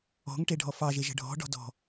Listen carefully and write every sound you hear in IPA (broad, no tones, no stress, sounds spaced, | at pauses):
ɔ̤ ŋ ʈ e ɖʱ ɔ f ɑ ʒ e ʒ ə̤ ɖʱ ɔ̤ ɖ ɔ̤ d ɔ̤